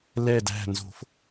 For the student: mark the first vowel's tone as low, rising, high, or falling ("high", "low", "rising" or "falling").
low